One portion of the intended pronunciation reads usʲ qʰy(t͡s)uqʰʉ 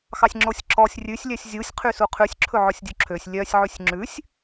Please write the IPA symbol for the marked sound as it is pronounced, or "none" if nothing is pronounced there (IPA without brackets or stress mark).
s